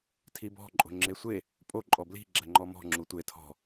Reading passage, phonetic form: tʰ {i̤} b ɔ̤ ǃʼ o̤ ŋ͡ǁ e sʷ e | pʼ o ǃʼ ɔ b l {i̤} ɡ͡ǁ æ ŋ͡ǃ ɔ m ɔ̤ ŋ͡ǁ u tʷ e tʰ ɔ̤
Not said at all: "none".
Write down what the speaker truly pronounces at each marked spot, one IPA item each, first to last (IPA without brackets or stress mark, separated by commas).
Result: i, i̤